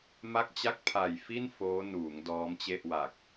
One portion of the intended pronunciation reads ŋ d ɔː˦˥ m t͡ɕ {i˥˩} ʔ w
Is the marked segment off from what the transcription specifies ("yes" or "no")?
yes